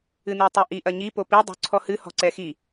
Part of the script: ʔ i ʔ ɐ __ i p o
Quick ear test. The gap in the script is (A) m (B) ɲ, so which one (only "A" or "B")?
B